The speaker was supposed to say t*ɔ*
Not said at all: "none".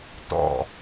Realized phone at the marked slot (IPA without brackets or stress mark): ɔ̰